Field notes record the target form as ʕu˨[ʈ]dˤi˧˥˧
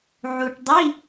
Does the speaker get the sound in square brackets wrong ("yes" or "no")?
no